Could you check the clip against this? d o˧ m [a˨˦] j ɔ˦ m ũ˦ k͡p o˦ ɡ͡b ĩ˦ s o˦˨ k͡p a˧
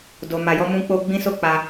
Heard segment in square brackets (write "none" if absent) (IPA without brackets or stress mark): a˧